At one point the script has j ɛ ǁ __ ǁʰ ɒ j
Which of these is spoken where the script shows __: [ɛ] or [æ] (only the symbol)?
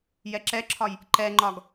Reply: ɛ